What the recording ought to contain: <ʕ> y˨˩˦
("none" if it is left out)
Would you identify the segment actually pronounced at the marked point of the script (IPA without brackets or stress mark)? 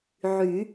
ʕ